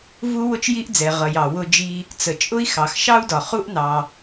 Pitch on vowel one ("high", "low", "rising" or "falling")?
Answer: high